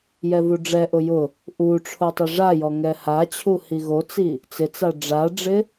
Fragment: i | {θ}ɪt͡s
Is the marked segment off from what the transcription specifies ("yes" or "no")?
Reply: yes